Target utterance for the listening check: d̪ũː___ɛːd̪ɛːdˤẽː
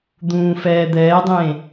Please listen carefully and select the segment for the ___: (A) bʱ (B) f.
B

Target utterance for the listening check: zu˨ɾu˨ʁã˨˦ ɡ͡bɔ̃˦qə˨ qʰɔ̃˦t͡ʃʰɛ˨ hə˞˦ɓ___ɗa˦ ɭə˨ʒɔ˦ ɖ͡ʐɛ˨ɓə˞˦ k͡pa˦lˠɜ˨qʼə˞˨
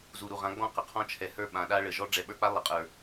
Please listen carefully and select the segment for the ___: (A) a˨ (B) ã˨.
B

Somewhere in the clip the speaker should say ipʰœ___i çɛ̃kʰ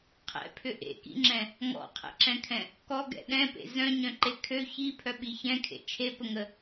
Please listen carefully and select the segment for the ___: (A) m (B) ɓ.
B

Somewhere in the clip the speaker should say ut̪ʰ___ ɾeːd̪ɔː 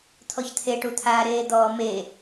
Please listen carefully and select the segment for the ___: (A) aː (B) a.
A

